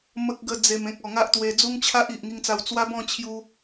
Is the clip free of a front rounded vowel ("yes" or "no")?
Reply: yes